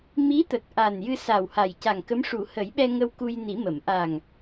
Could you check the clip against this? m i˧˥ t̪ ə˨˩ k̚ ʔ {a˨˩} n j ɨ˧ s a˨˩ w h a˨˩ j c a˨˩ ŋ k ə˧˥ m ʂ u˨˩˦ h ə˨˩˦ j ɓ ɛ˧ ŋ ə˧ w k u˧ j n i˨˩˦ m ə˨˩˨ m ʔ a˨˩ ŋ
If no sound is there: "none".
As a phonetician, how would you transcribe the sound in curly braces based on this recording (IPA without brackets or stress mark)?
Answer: a˨˩